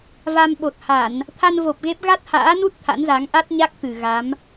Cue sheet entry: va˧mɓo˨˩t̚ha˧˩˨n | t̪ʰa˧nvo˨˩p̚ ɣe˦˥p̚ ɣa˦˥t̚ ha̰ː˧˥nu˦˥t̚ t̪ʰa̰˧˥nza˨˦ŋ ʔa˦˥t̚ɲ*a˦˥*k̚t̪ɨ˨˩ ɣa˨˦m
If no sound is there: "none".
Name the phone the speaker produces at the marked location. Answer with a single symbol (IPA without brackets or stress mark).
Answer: a˦˥